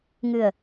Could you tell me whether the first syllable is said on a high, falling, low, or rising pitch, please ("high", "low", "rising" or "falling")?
low